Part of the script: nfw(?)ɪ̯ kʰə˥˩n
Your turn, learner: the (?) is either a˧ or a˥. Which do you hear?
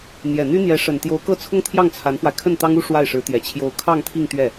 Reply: a˧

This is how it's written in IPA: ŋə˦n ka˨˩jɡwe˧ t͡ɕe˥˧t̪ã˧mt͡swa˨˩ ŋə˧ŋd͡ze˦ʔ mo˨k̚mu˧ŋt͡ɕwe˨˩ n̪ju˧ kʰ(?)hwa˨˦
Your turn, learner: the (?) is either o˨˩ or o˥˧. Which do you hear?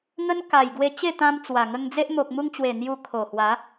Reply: o˨˩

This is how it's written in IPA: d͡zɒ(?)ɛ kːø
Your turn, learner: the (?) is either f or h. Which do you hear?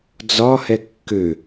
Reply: h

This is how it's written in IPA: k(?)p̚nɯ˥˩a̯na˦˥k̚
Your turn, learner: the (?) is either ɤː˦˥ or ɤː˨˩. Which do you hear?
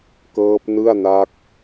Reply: ɤː˦˥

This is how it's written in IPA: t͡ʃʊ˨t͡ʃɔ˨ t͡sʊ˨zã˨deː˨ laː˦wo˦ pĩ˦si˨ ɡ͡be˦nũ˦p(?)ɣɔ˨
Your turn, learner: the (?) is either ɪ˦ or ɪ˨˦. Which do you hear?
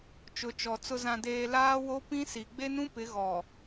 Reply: ɪ˨˦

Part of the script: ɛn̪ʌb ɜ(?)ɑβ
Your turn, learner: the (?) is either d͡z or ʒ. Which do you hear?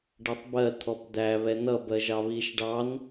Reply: ʒ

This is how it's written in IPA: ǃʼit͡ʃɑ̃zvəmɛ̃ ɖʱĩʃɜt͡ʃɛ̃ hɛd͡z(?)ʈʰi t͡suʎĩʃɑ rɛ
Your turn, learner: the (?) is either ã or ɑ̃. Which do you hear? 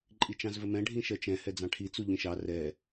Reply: ɑ̃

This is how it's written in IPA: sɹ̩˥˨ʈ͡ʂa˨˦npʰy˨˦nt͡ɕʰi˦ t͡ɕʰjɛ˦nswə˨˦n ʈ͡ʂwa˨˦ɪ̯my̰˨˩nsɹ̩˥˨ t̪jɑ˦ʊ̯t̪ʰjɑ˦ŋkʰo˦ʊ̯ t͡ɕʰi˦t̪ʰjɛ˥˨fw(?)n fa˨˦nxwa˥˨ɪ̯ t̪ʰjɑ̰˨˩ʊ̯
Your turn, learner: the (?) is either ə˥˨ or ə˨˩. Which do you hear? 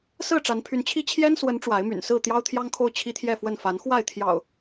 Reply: ə˥˨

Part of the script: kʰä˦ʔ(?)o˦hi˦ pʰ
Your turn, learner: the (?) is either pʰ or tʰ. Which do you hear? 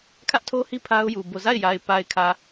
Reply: tʰ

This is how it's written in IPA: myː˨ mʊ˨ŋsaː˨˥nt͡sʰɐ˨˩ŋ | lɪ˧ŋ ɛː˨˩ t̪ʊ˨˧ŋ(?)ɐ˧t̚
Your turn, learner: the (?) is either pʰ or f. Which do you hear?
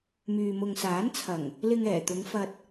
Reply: f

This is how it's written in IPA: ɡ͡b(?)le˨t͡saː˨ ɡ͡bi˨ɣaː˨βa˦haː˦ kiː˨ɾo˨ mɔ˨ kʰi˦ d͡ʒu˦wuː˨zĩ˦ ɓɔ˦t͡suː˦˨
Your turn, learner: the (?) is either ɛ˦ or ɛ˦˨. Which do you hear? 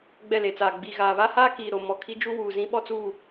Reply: ɛ˦˨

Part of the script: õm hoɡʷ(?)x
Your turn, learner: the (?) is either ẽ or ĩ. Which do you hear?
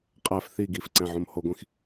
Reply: ĩ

